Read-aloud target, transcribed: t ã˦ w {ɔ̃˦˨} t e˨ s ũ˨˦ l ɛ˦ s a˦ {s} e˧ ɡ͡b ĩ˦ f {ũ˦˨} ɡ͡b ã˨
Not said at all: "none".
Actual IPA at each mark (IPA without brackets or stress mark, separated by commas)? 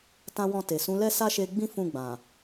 ɔ̃˦˨, ʃ, ũ˦˨